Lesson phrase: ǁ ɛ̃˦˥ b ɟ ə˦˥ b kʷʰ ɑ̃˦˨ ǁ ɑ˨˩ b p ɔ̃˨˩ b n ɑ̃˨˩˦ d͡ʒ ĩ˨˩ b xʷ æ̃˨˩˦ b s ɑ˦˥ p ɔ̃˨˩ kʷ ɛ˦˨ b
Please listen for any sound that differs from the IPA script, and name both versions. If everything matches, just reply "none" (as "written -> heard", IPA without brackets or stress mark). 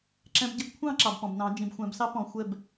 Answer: kʷ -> xʷ